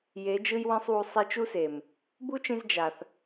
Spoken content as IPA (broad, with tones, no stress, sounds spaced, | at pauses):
j e˨˦ d͡ʒ ɯ˦ j w ẽ˦ sˤ w u˧ sˤ i˧ t͡ʃ u˦ s e˨ m | b u˦ t͡ʃ ĩ˧ z d͡ʒ a˨ θ